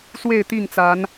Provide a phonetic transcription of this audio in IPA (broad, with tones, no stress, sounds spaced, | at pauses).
s w e˥˨ ɪ̯ t̪ i˥˨ ŋ t͡s a˨˦ n